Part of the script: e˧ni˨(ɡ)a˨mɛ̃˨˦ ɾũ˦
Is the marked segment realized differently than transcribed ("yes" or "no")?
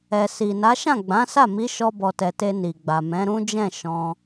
yes